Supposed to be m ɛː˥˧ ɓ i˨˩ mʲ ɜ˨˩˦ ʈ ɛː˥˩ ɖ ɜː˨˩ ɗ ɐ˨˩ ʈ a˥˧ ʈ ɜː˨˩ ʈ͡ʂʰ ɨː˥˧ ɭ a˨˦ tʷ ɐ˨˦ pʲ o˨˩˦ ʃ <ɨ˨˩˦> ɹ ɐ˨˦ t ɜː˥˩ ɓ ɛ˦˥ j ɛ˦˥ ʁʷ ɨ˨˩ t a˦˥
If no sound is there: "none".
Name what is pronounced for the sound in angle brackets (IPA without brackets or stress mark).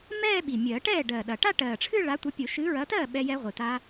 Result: ɨ˨˦